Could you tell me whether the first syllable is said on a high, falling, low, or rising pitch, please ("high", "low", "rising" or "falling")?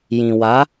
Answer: low